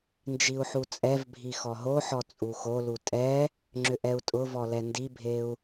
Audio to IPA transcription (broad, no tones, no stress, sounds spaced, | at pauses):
n d͡ʒ i u̯ ħ u t͡sʼ ɛ v bʱ i x ɔ ɦ o ħ ɔ t͡sʼ u x o l u tʼ ɛ | ŋ͡ǁ ʏ ʔ ɛ u̯ tʼ ʊ v ɔ l ɛ n d i bʱ e u̯